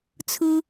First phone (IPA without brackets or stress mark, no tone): t͡sʰ